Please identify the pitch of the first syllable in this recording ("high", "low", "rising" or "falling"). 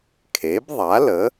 rising